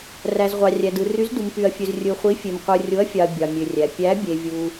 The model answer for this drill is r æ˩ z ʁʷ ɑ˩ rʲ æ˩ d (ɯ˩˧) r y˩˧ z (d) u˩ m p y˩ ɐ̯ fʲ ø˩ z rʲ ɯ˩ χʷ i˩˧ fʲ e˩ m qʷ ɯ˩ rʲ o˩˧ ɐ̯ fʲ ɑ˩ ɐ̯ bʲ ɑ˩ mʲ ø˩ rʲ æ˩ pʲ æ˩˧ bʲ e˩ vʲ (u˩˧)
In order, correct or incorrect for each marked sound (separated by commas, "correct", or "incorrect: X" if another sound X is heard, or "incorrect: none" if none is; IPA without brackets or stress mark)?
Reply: incorrect: ɯ˩, correct, incorrect: u˩